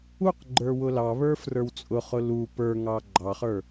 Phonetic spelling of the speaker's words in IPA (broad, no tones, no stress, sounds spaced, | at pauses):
u q ɡ͡ǃ ə˞ w ʊ l ɑ β ə˞ f r ə˞ w t͡sʼ ʊ χ ʊ l u p ə˞ ŋ ɑ ɡ͡ǃ ɑ χ ə˞